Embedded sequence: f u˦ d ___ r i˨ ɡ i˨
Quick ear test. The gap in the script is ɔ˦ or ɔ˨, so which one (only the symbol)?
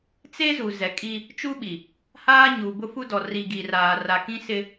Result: ɔ˨